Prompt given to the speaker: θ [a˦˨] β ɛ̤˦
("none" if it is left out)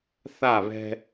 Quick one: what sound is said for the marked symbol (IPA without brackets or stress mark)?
a˦˨